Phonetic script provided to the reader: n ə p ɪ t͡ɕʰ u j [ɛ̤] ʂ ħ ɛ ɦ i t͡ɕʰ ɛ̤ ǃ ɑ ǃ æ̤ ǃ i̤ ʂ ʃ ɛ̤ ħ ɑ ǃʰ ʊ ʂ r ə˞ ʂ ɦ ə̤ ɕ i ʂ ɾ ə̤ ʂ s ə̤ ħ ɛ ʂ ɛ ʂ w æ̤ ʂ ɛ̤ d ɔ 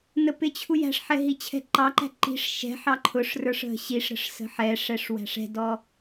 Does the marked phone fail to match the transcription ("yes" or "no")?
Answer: yes